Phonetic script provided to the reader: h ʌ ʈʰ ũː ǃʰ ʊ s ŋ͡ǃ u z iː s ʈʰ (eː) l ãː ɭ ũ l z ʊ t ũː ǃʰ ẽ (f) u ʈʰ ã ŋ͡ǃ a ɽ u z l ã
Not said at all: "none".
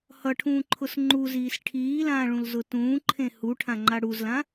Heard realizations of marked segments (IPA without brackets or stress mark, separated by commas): iː, h